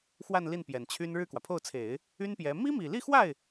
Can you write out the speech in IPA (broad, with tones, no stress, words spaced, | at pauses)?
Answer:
xwa˥˧nli˥˩n pjɛ˨˩nt͡ɕʰy˥n ɻɻ̩˥˩kwä˩pʰo˥˩ʊ̯t͡sʰe˨˩˦ɪ̯ | y˥npjɛ˧˥ mi˥mi˨˩li˥˧xwa˥˩ɪ̯